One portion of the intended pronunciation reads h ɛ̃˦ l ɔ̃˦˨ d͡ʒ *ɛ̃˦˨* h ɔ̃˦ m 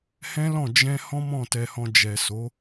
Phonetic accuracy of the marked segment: incorrect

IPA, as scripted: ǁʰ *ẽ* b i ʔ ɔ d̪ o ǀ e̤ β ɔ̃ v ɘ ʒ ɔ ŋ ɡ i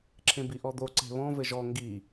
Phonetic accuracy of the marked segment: correct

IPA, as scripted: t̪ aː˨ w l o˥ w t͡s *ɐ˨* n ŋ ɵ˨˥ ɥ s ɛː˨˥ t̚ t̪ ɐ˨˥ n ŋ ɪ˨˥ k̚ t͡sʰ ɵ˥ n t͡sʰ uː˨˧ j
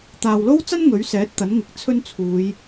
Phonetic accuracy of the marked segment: incorrect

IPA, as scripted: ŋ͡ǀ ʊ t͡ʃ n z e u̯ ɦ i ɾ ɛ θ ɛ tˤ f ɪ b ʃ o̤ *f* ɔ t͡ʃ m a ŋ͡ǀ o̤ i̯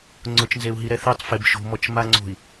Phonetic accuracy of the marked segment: incorrect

